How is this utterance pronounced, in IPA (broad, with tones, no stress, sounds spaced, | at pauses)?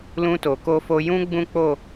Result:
l ũ˧ t o˨ k o˧ f o˧ j ũ˦ ɡ͡b ũ˦ k͡p o˦˨